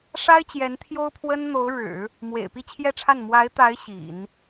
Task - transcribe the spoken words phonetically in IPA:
ʂ a˥ ɪ̯ t͡ɕ j ɛ˧˥ n t̪ʰ j o˥ ʊ̯ pʰ w ə˥ n n̪ o˧˥ ʊ̯ ɻ ɻ̩˨˩˦ | m w ḛ˨˩ ɪ̯ p i˥˧ t͡ɕʰ j ɛ˥˧ ʈ͡ʂʰ a˥˩ n m w a˧˥ ɪ̯ t̪ a˧˥ ɪ̯ ɕ ḭ˨˩˦ n

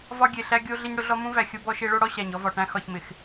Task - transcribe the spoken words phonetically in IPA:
v ɒ˦ ɡʲ e˨ ɬ æ˦ ɡʲ o˦ ɮ ɪ˦ ɲ ɽ ʊ˦ ɮ ɔ˦ m ũ˦ v æ˨ xʲ o˦ b ɔ˦ ʃ e˦ ɭ o˦ ɽ ɔ˦ ɕ æ˨ ɲ ɔ˦ v ɒ˨ ʈ æ̃˦ x ɒ˨ ç m ɪ˨ x

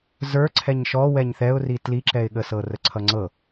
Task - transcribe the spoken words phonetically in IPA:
z ə˞ ǀʰ ɛ ɲ ʃ ɔ w ɛ ɲ θ ɛ ʊ̯ r i t l i ǁ ɛ ɪ̯ ɠ ə s ɤ r ə ǀʰ ʌ ŋ͡ǀ ɤ

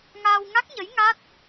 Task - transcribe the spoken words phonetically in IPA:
ŋ aː˧ w ŋ a˦˥ k̚ ɲ ə˧˥ j ŋ a˦˥ t̚

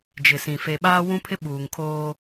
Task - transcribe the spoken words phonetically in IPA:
d͡ʒ ɪ˨ s ĩ˨ f e˨ ɓ aː˦ w ũ˦ pʰ ɪ˦ ɓ uː˨ ŋ kʰ oː˦

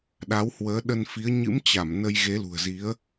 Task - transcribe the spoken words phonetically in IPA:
ɗ a˨˦ w h w əː˨˦ ɗ ə˧ n f i˨˦ ə̯ ɲ ɨ̰˧˥ m t͡ɕ a˧˩ m n ə˧ j ɣ e˨˦ l ṳ˨˩ ə̯ z i˨˦ ə̯

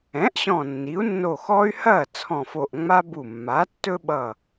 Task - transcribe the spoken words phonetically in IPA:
ɛ̃˩˥ ʔ ɕ ɔ̃˧˩ nː i˩˥ u̯ nː o˧˩ x ɔ˦ y̯ h ɐː˥˩ t͡sʰ ɔ̃˧˩ f o˧˩ ʔ ŋ͡m a˦ b u˧˩ mː a˩˥ tː ɵ˦ ɓ ʌ˧˩

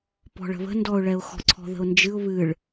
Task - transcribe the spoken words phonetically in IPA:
p ɔ̤ ɭ ə̤ β ə̤ n d ɔ ʊ̯ ɭ ɛ ʊ̯ x ɔ̤ ǀʰ ɔ̤ ð ə̤ ʊ̯ n d͡ʒ ɨ ʊ̯ β ɨ ɭ

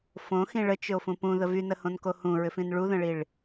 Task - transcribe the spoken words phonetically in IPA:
f õ x ĩ ɭ ə t͡ʃ ʏ o̯ f ũ p ũ ð ə v y n ə h õ n k o h ũ ɹ ʏ f ĩ n ɭ u ð ə̃ ɭ i ɭ

